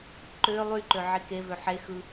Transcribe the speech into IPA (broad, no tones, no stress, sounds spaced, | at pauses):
ǃ ø lˠ y ǃ ø ʕ i k e v ø ħ e x ɯ